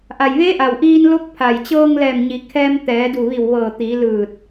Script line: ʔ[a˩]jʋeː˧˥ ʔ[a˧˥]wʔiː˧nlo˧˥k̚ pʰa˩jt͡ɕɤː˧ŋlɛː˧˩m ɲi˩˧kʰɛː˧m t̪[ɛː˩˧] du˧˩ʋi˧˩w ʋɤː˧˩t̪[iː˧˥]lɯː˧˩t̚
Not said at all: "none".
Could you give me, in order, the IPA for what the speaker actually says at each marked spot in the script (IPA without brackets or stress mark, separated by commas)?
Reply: a˩, a˩, ɛː˩˧, iː˩˧